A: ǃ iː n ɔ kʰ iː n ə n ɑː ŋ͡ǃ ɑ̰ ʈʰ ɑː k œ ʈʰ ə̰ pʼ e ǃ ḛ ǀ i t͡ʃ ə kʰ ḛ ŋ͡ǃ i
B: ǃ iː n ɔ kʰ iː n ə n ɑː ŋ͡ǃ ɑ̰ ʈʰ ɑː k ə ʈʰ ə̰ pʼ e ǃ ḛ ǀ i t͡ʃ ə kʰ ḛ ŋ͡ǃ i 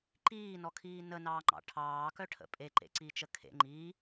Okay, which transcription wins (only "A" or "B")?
A